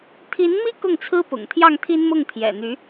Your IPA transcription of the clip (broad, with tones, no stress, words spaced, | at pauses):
t̪ʰi˧˥nmi˥ kʊ˥˩ŋt͡sʰɹ̩˥pʊ̰˨˩ŋ t̪ʰjɑ˥˩ŋt̪ʰi˥nmʊ˥˩ŋ t̪ʰjɛ̰˨˩n̪y˧˥